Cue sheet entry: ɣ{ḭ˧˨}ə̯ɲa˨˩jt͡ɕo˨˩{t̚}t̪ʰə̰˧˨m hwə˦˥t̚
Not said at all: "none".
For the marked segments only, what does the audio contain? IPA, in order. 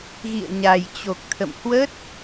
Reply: ḭ˧˨, k̚

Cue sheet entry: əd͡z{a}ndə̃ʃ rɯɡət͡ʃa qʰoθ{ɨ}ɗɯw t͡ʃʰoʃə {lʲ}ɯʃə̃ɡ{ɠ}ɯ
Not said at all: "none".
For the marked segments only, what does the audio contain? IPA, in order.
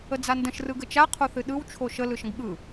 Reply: a, ɨ, l, ɠ

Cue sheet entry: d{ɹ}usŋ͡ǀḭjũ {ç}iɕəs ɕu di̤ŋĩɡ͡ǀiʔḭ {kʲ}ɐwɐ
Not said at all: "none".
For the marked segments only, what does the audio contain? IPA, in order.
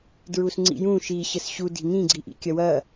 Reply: ɹ, ʃ, kʲ

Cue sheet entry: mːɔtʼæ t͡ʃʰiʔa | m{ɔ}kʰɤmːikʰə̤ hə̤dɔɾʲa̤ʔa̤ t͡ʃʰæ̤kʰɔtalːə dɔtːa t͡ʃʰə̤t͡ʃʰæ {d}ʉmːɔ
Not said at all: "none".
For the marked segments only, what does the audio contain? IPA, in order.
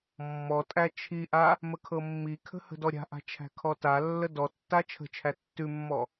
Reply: ə, tː

